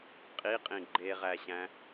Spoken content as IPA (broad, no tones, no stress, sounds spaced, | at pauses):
qʼ i qʼ ĩ ɡ͡ǃ e ʁ æ ɕ æ̃